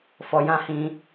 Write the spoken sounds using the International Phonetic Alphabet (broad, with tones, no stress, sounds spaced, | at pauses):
f ɔ˧ j ã˦ h ĩ˧